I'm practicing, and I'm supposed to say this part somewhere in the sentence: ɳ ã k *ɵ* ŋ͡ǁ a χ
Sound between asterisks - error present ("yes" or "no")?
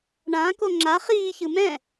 yes